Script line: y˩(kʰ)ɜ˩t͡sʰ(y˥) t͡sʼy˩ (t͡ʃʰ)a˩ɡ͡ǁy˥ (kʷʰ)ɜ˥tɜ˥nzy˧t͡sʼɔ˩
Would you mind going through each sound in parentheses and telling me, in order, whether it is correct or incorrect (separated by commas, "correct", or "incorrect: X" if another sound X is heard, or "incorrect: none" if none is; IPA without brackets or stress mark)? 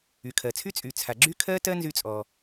correct, correct, incorrect: t͡sʰ, incorrect: kʰ